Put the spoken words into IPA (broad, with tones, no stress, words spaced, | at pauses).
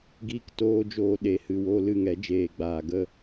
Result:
ɡiː˦ktoː˦d͡ʒoː˧ ɗe˨˦hɨ˨ wo˧ lɨ˦˨ŋɛ˨˦d͡ʒeː˨ɡ͡baː˨ ɡə˧